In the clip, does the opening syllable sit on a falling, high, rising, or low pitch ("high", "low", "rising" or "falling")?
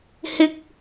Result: high